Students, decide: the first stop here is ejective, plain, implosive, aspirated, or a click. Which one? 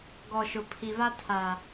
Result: plain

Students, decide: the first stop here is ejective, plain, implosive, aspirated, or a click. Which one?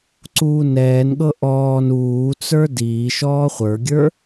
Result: click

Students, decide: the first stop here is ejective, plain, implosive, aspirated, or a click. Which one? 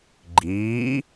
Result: click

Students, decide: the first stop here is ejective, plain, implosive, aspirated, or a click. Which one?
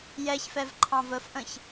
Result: click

